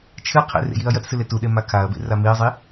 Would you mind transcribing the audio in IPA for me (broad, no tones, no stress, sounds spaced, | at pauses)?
t͡ʃʰ ɨ qʰ ḛ r ḛ j i ɐ̯ j ɐ t s ɨ l e t u ɗ e m a kʰ a ɐ̯ b ḛ r a m i ɐ̯ zˤ i